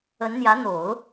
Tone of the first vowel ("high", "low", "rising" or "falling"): rising